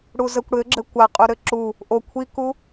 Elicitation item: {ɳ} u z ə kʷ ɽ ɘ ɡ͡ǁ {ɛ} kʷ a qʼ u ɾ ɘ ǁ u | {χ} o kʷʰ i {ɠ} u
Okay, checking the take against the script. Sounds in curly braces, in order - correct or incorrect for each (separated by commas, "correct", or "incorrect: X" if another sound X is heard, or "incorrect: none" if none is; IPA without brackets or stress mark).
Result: incorrect: ɽ, incorrect: ɘ, incorrect: ʔ, incorrect: k